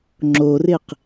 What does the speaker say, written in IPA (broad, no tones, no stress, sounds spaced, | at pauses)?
ŋ͡ǁ o r ɪ q